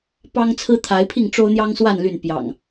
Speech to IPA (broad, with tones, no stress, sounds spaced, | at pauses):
p ɑ˦ ŋ t͡sʰ ɹ̩˦ t̪ʰ a˨˦ ɪ̯ pʰ i˥˨ ŋ ʈ͡ʂ o˦ ʊ̯ n̪ j ɑ˦ ŋ s w a˥˨ n l y˥˨ n p j ɑ̰˨˩ ŋ